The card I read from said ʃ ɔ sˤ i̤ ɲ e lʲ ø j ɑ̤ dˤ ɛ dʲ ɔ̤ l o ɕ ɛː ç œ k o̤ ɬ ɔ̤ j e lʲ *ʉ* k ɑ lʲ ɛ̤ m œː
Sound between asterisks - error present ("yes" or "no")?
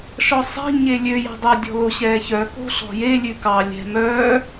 no